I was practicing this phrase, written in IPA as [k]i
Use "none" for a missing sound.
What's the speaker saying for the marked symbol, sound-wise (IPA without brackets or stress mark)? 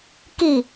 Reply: k